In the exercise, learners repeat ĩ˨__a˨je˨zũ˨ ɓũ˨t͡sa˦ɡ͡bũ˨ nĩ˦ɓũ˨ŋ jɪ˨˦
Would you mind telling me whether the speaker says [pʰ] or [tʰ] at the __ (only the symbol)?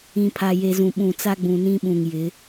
pʰ